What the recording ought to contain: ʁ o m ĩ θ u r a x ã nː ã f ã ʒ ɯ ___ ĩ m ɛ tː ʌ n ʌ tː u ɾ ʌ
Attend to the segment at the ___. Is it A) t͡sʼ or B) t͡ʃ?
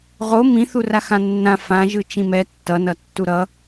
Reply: B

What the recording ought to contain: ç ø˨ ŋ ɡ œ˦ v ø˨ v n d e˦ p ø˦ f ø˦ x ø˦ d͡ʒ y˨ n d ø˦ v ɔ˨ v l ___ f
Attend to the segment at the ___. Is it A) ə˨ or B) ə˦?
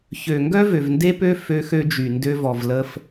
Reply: B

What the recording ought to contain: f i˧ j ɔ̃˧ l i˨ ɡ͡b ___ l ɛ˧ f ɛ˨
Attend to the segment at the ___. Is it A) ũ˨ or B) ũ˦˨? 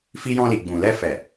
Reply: A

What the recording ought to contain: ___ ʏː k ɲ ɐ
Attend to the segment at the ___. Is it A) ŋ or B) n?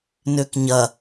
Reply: B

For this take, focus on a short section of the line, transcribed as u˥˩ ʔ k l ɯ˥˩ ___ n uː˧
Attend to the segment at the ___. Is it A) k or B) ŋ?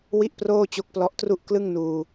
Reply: B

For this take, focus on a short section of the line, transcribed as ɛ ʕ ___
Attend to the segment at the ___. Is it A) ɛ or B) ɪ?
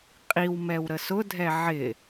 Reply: B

